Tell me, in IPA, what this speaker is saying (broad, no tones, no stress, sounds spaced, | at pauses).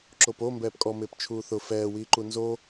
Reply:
ǁ o p o m b ɛː p kʼ ɔ m ɪː p t͡ʃʰ uː θ ʊ f ɛː w iː ǃ u n z o